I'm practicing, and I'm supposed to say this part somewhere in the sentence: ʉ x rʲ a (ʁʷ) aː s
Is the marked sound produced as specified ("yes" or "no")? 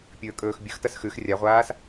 yes